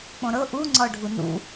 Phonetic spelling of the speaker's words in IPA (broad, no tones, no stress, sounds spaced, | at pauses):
k͡p õ ɾ ɤ ʔ u ŋ͡ǀ ɔ ɖʱ u n ṵ